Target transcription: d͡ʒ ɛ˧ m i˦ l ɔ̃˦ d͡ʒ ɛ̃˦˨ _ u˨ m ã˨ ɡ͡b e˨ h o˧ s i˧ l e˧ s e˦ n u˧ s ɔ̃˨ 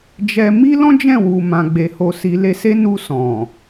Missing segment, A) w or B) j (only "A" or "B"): A